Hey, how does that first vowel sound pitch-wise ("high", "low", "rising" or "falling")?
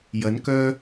rising